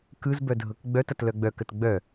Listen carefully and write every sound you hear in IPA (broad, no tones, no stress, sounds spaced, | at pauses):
k ɯ z b œ dʱ ɤ k ɡ͡b œ t ɐ t l œ ɡ͡b œ k ə t ɡ͡b œ